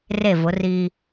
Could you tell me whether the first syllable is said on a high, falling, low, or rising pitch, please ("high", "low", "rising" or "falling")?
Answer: falling